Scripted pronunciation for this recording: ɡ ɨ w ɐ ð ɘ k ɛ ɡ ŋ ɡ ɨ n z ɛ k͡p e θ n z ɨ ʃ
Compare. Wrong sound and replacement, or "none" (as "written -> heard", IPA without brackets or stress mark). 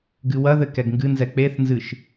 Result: none